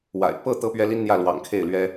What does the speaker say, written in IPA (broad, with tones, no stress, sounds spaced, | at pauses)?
w a̰˨˩ ɪ̯ p ɤ˥˩ t̪ ɤ˥ p ɥ ɛ˥ l i˥ n n̪ j ä˥˩ l w ɑ̰˨˩ ŋ kʰ e˥˩ ɪ̯ l ɥ ɛ˥